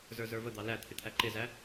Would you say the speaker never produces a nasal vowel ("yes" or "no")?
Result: yes